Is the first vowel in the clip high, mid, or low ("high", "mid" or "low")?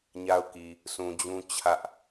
low